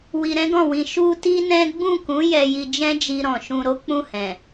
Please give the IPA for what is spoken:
w i˧ ɾ ɛ̃˦ ɡ ɔ̃˦˨ w ĩ˧ ʃ u˦ t i˦ n ɛ̃˦ ɡ͡b ũ˦˨ k ũ˨˦ j ɛ˧ j i˧ d͡ʒ ɛ̃˦ d͡ʒ i˧ ɾ ɔ̃˨ ʃ ũ˧ ɾ o˦ k͡p ũ˦˨ h ɛ̃˨

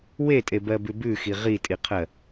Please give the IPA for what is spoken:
w e tʼ e b ɜ b ʉ b ʉ x i ʁ i tʼ i qʰ ɜ

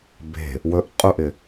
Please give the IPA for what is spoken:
b e̤ | w ɵ ʔ qʼ u ʔ ɪ

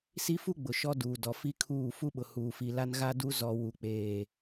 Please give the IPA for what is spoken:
s i˦ f u˦ ɡ͡b ʊ˨ ʃ ɔ˦ d uː˨ d ɔ˨ f i˦ kʰ uː˦˨ f u˦ ɓ ʊ˨ h uː˨ f i˨ l a˦ n ɣ a˦ d u˦ z ɔ˨ w u˨ k͡p eː˨

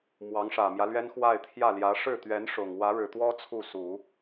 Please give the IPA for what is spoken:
m w ɑ˧˥ ŋ ʂ ä˨˩ m j ä˦ l ɥ ɛ˥ n x w a˥˧ ɪ̯ t̪ʰ j ä˥˩ l j ä˧˥ ʂ ɻ̩˥˩ t̪ ɥ ɛ˧˥ n ʂ ʊ˨˩ ŋ w ä˧˥ ɻ ɻ̩˨˩ t̪ w ɔ˥ t͡sʰ u˥˩ s u˨˩˦

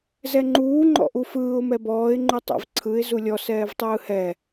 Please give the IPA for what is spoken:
z ɛ ŋ͡ǃ uː ŋ͡ǃ ɔ̰ ʔ u f ɯː ʊ̯ m ɛ b ɔː ɪ̯ ŋ͡ǃ u tˤ ɛ̰ v ǀʰ ɯ ɪ̯ z u lʲ ɔ s ɛː v tˤ ɯː h ɛ

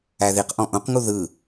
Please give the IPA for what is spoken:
æ ð i q ʔ ɔ̃ ʔ õ q ŋ u ð ɯ

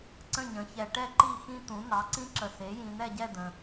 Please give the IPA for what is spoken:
ǀ ə̃˥˨ ɲ ə̃˩˥ ç ɛ˨ ʈ ɛ˥˨ ǃ i˥˨ x ĩ˦˥ t̪ ũ˩˥ n̪ ɑ˩˥ ǀ ĩ˦˥ ǁ ə˨ s e˩˥ j ĩ˨ n̪ ɛ˥˨ ɟ ɛ˥˨ d̪ ə̃˨

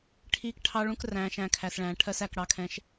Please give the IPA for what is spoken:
ʈʰ iː˧ k ʈʰ ɑ˧ ɭ ũ˧ k r æ̃ː˨ ʃ æ̃˦˨ kʰ æ˨ s ɭ æ̃ː˨ ʈʰ ɜ˧ s æ˨ k ɽ ɑ˨ kʰ ɛ̃˨ ʃ

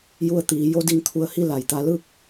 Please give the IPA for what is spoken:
j u˧ ə̯ t̪ iː˩˧ j o˧˥ d i˧˩ ŋ t̪ʰ u˧˩ ə̯ h i˥˨ l a˧˩ j t̪ a˧˥ l ɯː˥˨ k̚

